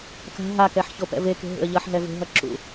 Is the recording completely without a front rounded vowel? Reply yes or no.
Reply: yes